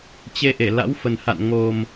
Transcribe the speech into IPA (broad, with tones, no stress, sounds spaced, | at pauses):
t͡ɕ e˧ ʔ e˧˩ l a̰˧˥ w f ə˨˩ n h a̰˧˨ n ŋ o˨˩ m